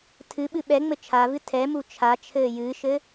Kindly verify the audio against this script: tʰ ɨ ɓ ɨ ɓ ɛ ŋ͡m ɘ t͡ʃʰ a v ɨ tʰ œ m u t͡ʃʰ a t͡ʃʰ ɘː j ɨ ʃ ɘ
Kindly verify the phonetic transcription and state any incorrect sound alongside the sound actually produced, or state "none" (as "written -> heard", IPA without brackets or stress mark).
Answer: œ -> ɛ